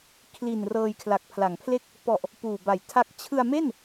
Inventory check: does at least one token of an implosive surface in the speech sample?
no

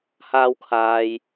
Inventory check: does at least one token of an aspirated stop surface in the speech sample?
yes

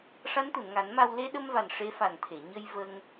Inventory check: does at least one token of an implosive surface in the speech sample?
yes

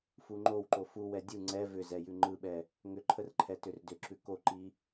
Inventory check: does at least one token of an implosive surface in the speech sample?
yes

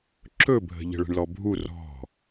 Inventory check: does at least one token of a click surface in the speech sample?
yes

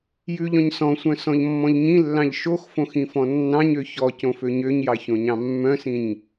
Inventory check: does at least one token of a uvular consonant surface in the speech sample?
no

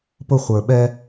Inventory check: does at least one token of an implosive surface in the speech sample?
yes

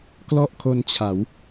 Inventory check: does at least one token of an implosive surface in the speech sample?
no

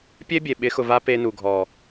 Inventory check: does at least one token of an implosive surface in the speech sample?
yes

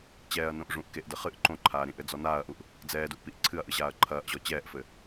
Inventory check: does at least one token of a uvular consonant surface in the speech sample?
yes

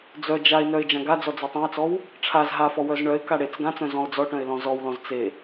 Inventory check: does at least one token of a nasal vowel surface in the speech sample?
yes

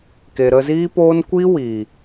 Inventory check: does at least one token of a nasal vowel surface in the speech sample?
no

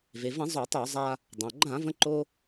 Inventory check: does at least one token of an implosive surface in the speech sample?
no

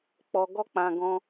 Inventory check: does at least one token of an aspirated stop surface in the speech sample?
no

